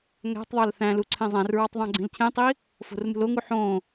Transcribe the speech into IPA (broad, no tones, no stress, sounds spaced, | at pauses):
ŋ æ̤ tˤ ðˤ ɑ l θ æ̃ l u ǀʰ ẽ zˤ æ̃ r ɹ ɑ tˤ ðˤ ɑ̃ ɡ͡ǀ ĩ l cʰ ẽ tˤ i | f o̤ r m ṳ l o ŋ u ħ õ